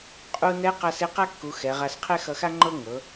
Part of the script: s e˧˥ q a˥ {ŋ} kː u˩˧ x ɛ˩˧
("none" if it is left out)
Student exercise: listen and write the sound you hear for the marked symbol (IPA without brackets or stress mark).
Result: none